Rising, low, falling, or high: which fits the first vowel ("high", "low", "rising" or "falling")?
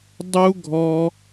high